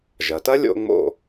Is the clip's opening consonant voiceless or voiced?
voiced